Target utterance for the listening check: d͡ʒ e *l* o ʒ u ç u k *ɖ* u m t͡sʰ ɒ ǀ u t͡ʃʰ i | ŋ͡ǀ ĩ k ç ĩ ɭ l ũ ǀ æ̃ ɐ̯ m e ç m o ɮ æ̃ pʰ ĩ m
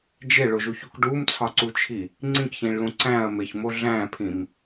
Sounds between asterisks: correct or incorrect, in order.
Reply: incorrect, correct

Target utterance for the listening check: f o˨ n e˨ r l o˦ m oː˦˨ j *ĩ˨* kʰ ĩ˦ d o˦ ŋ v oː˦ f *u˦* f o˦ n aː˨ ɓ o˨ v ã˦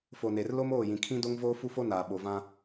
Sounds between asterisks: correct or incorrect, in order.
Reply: correct, correct

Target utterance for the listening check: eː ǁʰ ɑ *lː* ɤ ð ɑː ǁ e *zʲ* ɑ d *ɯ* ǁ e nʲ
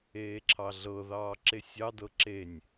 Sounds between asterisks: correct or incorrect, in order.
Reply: incorrect, incorrect, incorrect

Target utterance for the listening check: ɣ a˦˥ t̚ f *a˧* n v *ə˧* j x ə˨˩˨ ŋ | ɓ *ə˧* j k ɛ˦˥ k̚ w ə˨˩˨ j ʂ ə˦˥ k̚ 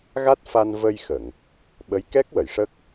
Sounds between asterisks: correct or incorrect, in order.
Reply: correct, correct, incorrect

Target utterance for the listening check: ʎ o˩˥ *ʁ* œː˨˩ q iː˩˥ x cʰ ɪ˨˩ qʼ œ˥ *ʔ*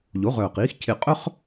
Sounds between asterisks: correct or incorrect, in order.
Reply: correct, incorrect

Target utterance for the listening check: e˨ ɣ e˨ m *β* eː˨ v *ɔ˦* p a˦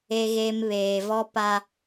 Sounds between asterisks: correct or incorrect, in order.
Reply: correct, correct

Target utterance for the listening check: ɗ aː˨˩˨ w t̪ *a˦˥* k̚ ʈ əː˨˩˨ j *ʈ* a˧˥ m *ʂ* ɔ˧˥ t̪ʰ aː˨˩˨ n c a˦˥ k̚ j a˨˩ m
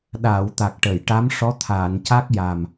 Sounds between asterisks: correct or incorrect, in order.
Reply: incorrect, correct, correct

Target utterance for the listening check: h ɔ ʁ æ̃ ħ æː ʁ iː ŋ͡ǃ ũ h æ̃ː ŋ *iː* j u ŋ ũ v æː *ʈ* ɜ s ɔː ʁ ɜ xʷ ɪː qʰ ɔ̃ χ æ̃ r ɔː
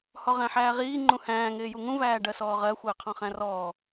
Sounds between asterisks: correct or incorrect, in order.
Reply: incorrect, incorrect

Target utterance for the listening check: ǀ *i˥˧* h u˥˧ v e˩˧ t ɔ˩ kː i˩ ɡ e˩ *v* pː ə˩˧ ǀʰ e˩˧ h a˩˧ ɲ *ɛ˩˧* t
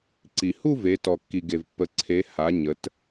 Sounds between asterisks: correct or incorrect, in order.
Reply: incorrect, correct, incorrect

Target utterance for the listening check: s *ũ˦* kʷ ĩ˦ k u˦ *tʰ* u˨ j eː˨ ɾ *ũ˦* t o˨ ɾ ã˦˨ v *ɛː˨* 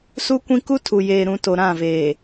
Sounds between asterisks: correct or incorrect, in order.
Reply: incorrect, correct, incorrect, incorrect

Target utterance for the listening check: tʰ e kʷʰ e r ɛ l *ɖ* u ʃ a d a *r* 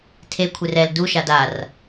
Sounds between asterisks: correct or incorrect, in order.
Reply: incorrect, correct

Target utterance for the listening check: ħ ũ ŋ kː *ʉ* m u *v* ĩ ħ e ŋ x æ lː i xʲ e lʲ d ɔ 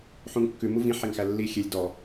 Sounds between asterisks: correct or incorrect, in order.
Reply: correct, correct

